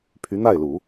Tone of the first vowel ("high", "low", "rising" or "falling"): rising